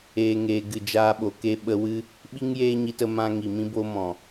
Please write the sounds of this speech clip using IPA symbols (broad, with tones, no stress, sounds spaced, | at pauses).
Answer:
eː˨ ŋ eː˨ ɡ ɨ˨ d͡ʒ aː˧ ɓ o˨ k e˦ ɓ ə˧ w ɨ˦ | ɓ i˦ ŋ j eː˦ ɲ i˧ t ə˧ m ã˦ ŋ i˨ m ĩ˦ b o˦ m ɔ̃˨